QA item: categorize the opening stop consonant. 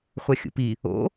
plain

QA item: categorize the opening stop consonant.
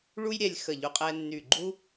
ejective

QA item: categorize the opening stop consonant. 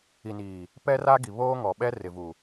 plain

